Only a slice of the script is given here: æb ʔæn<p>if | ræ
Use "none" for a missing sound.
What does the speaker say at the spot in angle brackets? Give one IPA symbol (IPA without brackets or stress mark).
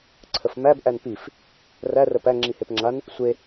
p